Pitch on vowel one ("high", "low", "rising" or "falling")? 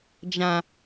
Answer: low